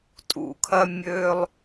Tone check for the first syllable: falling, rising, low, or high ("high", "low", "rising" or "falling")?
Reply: low